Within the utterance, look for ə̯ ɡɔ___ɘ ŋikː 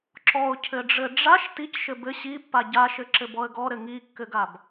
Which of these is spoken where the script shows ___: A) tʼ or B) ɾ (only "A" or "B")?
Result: B